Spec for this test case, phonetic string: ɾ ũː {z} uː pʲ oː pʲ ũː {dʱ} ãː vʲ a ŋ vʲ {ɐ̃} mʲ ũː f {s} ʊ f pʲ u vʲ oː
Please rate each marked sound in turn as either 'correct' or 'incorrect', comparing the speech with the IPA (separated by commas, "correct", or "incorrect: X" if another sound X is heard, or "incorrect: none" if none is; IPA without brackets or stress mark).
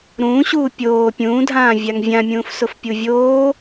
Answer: incorrect: ɕ, correct, incorrect: ã, correct